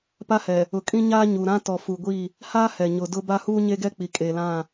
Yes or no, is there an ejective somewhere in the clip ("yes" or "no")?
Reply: yes